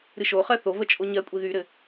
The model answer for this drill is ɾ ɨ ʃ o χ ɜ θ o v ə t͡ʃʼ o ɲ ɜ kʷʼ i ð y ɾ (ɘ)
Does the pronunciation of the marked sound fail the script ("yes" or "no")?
no